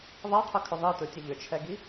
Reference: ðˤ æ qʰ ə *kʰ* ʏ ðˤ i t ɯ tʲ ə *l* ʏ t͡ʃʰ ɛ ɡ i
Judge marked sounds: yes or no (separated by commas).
yes, no